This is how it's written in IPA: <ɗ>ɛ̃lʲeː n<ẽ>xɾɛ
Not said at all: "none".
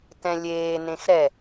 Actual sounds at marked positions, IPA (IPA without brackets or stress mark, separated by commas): t, ẽ